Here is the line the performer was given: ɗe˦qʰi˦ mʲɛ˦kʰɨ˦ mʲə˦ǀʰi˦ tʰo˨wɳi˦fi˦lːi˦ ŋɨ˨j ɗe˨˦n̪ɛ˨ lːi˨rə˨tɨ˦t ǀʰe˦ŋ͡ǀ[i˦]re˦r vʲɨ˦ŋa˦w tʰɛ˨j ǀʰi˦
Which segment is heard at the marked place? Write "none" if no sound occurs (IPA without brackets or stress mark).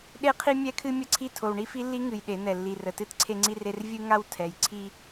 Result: i˦